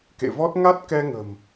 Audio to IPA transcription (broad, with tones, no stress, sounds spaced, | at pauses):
k ḛ˧˨ v ɔ˦˥ t̚ ŋ a˦˥ t̚ k ɛ˧ ŋ ə̤˨˩ m